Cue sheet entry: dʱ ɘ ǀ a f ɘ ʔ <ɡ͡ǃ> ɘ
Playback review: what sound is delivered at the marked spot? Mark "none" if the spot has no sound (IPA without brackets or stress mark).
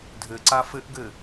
ɡ